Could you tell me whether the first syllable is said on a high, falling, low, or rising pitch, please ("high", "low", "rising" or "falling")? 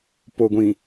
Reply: low